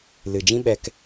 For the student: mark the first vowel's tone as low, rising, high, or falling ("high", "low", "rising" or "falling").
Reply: low